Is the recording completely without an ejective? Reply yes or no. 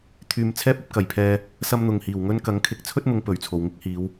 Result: yes